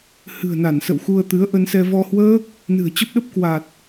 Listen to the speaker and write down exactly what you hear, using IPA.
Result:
h ɨ̤˨˩ ə̯ n a˧˩ n s ə̰˧˨ w x u˧ ə̯ t̪ ɨ˨˦ ə̯ ʔ ə˧ n s ɛ˧ v ɔ˧ h w əː˦˥ k̚ | n ɨ̤˨˩ ə̯ t͡ɕ ə˦˥ p̚ ɗ ə˦˥ p̚ k w a˨˩ t̚

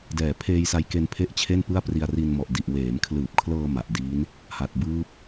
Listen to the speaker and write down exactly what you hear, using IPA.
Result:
d ɛː˨˩ pʰ eː˧ j s a˧ j k e˧ n pʰ e˥˩ ʔ t͡ɕʰ e˥˩ n p ɯ˥˩ a̯ p r i˧ a̯ r i˧ n m ɔ˨˩ ʔ d i˨˩ ʔ w eː˩˦ m kʰ l ɯː˨˩ p̚ kʰ l ɤː˧ m a˨˩ ʔ d iː˦˥ n | h a˨˩ t̚ b ɯː˦˥ p̚

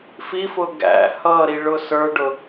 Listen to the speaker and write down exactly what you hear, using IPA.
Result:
f i f ʊ ɡ æ̰ h ʌ ɾ i ɭ ʊ s ə˞ ɖ ʊ

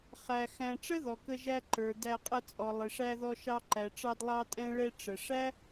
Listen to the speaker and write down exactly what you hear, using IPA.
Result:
χ æ˧ x æ̃˧ ʈ͡ʂ ə˦ ð ɔ˨ k ə˧ ʒ æ˧ ǃ ə˞˨ d æ˧ qʼ ə˧ t͡sʼ ɔ˨ lˠ ɪ˨ ʂ æ˧ ð ɔ˧ ʃ ɑ˧ ǃ æ˨ ʈ͡ʂ ɑ˧ d lˠ ɑ˧ tʼ ɛ̃˧ ɭ ɛ˧ ʈ͡ʂ ə˨ ʂ æ˦

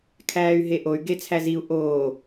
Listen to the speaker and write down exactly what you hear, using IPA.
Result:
kʰ æː y̯ ɦ e ʔ o y̯ ɡ e t͡sʰ æ z i u̯ ʔ oː

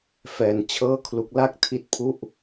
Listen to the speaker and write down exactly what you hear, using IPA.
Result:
f ɛː˧ n t͡ɕʰ ɤː˥˩ kʰ l u˦˥ k̚ l a˥˩ k̚ tʰ i˦˥ t̚ pʰ u˥˩ ʔ

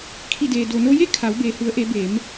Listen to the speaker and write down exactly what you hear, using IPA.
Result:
kʰ i˧˩ d eː˩ d o˩ n o˧ j e˥˨ kʰ a˩˧ w b eː˩ h u˩˧ ə̯ ʔ e˩˧ b eː˩˧ m

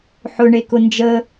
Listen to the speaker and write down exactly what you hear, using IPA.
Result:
ħ ʊ ɳ e k ʊ n d͡ʒ ə

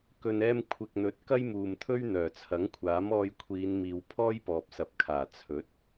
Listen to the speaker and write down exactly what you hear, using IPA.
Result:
k ɵ˨ n ɛː˧ m kʷʰ ɪ˨ k̚ n̪ ɵ˨˥ t̚ k ɐ˥ j m uː˨ m t̪ʰ ɵ˥ ɥ n̪ œː˨˩ t͡sʰ ɐ˨˥ ŋ kʷʰ aː˨˥ m ɔː˧ j kʷʰ iː˨˧ n m iː˨ w pʰ ɔː˥ j p ɔː˨ p̚ s ɐ˨ p̚ kʰ aː˨˩ t͡sʰ ɵ˨˥ t̚

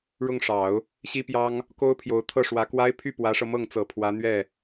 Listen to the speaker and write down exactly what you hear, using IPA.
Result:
ɻ ʊ˥˩ ŋ ʂ ɑ˨˩˦ ʊ̯ | ɕ i˥ p j ɑ˥ ŋ | k o˥ ʊ̯ pʰ j o˧˥ ʊ̯ t̪ʰ ɤ˥˩ ʂ w ä˧˥ k w a˥ ɪ̯ pʰ y˥˩ p w ä˧˥ ʂ ɤ˧ m ɤ˥˩ ŋ t͡s ɤ˨˩ pʰ w ä˧˥ n̪ ɥ ɛ˥˩

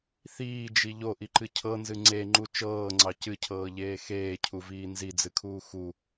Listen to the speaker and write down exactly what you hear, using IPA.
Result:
θ iː d͡ʒ i ʎ o ʔ i ǃ ɨ cʰ ɤ n z ɨ ŋ͡ǀ e ŋ͡ǃ u t͡ʃ ɤː ŋ͡ǀ ɑ c ɨ cʰ ɤː ʎ eː x eː cʰ u v iː n z i d͡z ɨ kʰ uː x u

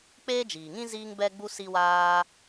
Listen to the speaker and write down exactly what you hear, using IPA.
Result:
k͡p eː˦ d͡ʒ iː˨ ŋ ĩ˦ z iː˦ ŋ b ɛ˦ ɡ͡b u˦ s i˦ w aː˦

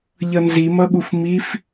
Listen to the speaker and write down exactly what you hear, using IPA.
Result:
ʎ ʌ n z i m ʌ ɠ u f m i f

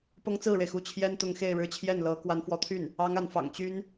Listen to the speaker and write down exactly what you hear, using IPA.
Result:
p ɤ˥ ŋ t͡s ɹ̩˥˩ ɻ e˩ ɪ̯ x u˥˩ t͡ɕʰ j ɛ˥ n t̪ ʊ˧˥ ŋ x e˥˧ ɪ̯ ɻ ɻ̩˥˧ t͡ɕʰ j ɛ˥˩ n l ɤ˧˥ k w a˧˥ n f w ɔ˧˥ t̪ʰ y˥˩ n | ɑ˥ ŋ a˧˥ n f ɑ̰˨˩ ŋ t͡ɕ y˥ n

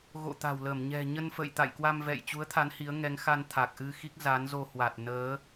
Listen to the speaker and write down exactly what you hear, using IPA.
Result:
ɣ o̰˧˨ t̪ a̤˨˩ w l ə˧˩ m ɲ ɛ̤˨˩ ɲ ə˧ n f ə̰˧˨ j t̪ a̰˧˨ j k w a˧ m v ɛ̰˧˨ j t͡ɕ u˨˦ ə̯ t̪ʰ a˨˦ n h i˨˦ ə̯ ŋ ɛ˨˦ ŋ x a˧ n t̪ʰ a˨˩ k̚ ʔ ɨ˧ x i˦˥ k̚ z a˨˦ n z o˧ h w a˨˩ t̚ n əː˨˦

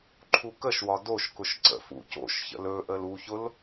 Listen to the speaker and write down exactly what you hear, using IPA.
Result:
ǃʰ u k ə ʃ w ɒ d o ʃ k ʊ ʃ ǀ ə̰ f ṵ c o̰ ʃ ç ə̰ l ɵ ʔ ə l u ç ʊ l

